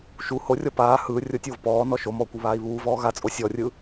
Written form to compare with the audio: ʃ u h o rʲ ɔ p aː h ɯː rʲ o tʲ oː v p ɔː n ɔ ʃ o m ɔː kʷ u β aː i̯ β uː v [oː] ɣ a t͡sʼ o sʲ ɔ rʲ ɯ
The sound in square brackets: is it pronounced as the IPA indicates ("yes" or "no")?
no